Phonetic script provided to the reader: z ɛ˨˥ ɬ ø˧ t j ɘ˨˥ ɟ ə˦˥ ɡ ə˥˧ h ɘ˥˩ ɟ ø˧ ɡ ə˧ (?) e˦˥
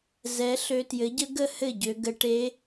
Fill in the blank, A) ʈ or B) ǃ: A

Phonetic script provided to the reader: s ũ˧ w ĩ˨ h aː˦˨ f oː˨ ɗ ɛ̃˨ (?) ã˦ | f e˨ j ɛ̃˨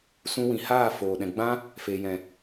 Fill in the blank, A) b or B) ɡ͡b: B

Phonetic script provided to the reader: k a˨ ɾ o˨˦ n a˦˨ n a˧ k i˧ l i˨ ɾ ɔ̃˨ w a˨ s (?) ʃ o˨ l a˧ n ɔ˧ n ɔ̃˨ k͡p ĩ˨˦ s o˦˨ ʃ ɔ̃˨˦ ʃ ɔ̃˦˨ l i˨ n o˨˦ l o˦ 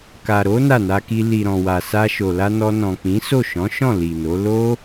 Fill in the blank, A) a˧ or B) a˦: A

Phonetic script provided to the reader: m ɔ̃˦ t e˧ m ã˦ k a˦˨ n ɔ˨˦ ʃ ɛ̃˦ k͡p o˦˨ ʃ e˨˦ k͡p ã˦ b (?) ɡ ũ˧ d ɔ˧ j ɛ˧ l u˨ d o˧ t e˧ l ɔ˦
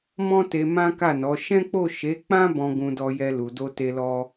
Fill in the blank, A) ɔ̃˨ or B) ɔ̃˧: B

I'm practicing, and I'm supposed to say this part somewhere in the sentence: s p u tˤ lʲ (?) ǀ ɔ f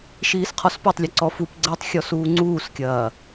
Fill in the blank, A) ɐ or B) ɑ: A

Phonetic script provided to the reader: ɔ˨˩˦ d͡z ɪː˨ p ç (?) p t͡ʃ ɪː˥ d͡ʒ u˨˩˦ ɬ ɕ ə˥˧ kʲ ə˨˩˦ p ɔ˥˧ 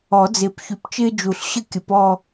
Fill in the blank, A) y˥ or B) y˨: B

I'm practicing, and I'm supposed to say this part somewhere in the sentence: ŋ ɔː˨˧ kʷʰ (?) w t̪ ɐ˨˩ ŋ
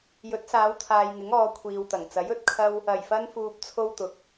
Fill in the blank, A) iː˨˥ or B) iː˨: B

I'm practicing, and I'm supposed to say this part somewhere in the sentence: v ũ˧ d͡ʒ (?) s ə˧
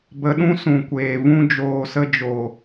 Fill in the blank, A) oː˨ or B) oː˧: A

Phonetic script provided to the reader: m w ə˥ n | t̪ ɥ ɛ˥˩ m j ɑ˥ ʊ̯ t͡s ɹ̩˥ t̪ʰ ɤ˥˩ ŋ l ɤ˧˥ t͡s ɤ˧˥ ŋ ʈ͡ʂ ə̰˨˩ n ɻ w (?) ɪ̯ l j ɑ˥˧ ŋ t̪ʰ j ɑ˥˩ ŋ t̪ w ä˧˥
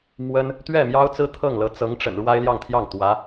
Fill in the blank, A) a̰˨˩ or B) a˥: B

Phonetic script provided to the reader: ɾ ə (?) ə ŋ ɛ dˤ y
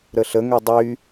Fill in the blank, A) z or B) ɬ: B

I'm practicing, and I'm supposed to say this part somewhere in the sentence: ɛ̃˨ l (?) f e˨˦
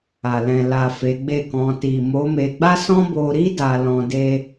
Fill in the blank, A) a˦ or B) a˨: B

